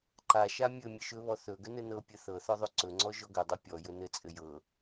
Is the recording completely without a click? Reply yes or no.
no